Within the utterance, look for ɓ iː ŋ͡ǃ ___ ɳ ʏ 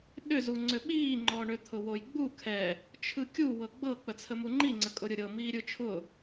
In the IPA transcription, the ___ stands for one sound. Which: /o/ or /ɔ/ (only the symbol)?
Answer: ɔ